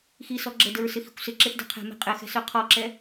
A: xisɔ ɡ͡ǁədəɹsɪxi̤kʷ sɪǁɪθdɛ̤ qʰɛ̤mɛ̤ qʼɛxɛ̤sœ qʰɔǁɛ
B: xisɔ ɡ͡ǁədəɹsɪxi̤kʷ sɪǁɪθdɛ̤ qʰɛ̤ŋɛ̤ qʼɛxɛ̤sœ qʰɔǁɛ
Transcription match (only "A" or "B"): A